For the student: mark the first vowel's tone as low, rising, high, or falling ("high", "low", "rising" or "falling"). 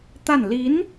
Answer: falling